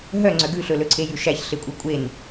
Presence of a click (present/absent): present